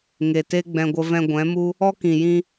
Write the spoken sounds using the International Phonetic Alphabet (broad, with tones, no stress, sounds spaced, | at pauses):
ŋ e˨ t e˦ ɡ͡b ɛ̃˧ ɡʷ ə˧ v ɛ̃˧ ɡʷ ɛ̃˨˦ m u˦ | ɔ˦ k ĩ˨ j ĩ˧